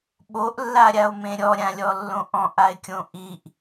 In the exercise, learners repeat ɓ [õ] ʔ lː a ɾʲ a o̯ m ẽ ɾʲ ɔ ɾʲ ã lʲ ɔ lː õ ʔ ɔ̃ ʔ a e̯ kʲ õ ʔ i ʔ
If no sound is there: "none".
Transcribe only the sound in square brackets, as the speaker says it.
o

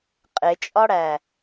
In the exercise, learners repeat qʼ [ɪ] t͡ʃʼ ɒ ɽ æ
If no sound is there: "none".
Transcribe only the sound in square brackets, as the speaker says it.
ɪ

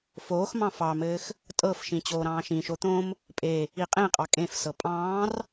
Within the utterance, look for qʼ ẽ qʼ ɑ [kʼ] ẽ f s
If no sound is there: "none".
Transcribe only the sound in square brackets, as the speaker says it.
kʼ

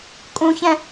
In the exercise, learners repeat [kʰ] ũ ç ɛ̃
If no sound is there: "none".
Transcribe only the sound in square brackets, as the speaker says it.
kʼ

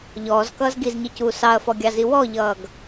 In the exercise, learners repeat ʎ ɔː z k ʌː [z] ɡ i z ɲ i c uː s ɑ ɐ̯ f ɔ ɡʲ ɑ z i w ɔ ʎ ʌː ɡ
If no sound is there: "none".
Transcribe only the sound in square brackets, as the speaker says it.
z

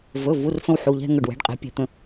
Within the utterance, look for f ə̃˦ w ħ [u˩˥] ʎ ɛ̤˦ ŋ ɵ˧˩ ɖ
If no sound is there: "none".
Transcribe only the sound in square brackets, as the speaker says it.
u˩˧˩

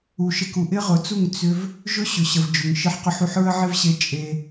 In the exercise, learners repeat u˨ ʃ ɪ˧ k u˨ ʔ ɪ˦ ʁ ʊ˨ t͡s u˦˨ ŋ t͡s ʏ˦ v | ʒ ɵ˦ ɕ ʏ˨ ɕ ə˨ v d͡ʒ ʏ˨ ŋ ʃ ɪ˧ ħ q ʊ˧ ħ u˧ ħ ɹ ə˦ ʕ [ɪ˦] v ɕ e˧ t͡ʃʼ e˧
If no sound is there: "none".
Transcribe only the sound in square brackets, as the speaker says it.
ɪ˦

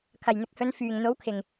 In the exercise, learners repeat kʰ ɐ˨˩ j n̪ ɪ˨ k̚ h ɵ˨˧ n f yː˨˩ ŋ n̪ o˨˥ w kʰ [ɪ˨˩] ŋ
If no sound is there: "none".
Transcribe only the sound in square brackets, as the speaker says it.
ɪ˨˩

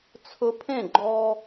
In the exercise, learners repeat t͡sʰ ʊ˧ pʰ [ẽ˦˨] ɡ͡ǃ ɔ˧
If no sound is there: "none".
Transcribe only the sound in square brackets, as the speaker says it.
ẽ˦˨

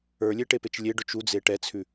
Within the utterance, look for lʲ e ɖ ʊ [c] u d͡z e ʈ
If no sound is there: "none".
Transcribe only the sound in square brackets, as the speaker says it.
t͡ʃ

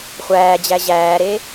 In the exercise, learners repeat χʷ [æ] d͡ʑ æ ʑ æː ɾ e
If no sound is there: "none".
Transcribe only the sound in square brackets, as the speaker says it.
æː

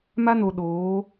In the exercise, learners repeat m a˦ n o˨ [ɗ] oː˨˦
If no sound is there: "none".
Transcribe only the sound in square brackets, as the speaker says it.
ɗ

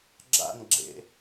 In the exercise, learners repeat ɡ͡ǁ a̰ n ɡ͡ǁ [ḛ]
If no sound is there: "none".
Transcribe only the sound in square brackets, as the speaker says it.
ḛ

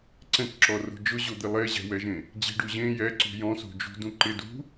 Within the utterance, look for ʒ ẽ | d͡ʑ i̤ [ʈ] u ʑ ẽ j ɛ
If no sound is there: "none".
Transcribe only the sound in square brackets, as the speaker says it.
ɖ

